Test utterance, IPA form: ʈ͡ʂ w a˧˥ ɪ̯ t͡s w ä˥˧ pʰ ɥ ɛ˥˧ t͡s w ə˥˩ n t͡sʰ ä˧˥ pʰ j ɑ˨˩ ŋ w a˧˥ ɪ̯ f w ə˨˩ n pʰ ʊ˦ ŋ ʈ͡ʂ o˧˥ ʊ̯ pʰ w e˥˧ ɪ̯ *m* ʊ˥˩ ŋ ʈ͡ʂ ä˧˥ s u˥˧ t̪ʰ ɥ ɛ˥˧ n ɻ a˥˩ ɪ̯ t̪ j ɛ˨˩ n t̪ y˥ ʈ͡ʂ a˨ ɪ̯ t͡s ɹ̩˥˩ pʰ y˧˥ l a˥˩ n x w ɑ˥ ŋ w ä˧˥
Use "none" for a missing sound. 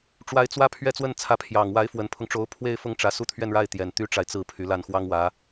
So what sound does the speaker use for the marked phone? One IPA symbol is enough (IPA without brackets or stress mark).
f